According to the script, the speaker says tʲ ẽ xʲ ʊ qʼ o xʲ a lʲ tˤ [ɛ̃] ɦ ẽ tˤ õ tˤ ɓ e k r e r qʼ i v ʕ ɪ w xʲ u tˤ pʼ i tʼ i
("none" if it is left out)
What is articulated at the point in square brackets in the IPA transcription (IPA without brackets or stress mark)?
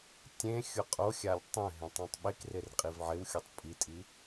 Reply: ɛ̃